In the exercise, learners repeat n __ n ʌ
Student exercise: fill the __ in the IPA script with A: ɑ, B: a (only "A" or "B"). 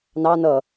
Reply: A